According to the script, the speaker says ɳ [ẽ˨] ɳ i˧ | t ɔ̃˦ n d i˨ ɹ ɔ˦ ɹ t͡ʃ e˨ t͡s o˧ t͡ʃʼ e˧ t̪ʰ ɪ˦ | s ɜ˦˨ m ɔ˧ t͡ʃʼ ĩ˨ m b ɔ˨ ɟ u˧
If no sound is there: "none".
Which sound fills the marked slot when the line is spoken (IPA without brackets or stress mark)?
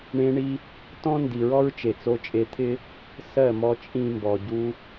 ẽ˧